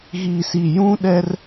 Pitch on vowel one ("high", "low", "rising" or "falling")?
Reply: low